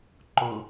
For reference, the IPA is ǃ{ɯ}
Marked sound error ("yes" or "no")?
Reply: yes